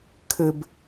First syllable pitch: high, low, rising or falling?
low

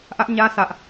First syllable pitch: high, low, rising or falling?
high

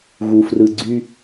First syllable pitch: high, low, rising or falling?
low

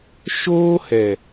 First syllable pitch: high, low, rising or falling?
high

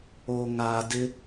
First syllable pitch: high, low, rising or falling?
low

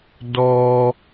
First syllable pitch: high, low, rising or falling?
low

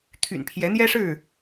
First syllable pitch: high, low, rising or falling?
low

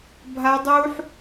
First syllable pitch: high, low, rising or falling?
high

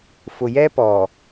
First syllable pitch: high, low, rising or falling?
low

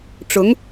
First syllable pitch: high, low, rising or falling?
rising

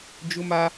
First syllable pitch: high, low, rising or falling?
high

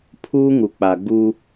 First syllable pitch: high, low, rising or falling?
high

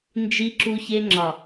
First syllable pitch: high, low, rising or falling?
high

